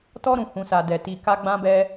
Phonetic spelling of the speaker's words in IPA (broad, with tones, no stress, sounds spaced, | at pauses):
t ɔ˧ ɾ ũ˨ h ũ˨ s a˨ d ɛ˨ t i˨ k a˧ ɡ͡b ã˧ b ɛ˧